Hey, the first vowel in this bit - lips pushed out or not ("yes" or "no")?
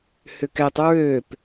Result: yes